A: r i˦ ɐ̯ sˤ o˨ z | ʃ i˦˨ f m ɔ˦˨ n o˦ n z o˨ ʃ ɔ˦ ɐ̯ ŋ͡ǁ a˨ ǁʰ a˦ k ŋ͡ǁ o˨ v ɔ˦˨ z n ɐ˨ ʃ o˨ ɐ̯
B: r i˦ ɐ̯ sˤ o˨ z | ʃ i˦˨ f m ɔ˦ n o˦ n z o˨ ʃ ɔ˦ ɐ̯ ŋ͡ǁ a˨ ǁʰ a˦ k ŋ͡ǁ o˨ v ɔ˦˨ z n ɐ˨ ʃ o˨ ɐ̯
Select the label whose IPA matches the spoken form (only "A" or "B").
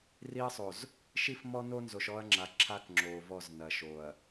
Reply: B